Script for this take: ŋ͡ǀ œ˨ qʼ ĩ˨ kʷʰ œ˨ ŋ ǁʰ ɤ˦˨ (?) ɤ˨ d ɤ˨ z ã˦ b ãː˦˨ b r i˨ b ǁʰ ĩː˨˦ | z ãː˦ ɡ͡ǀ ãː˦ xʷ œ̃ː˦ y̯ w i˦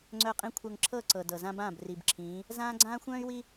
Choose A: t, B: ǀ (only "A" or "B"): B